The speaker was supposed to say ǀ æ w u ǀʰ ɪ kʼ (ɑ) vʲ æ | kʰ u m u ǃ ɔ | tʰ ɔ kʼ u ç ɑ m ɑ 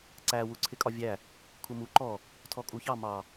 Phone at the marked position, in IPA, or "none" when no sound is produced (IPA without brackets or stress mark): ɒ